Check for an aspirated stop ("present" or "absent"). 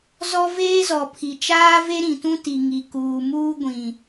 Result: present